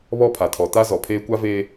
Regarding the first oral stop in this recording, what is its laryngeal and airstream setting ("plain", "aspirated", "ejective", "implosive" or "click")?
aspirated